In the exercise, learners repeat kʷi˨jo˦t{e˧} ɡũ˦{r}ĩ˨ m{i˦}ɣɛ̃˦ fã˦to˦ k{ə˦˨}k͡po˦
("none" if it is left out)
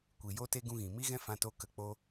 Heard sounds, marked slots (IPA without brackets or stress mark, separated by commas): e˦, ɣ, i˦, ə˦˨